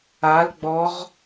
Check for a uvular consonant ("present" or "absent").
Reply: present